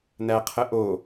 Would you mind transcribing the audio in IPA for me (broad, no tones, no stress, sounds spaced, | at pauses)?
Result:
n æ qʰ ə ʔ o